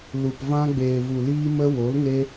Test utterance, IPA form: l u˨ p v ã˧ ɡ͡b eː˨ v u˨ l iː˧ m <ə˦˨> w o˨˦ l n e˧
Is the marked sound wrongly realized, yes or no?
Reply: yes